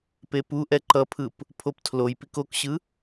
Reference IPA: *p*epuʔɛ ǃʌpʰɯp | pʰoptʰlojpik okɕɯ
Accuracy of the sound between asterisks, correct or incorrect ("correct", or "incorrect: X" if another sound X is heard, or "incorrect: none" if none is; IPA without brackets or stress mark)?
correct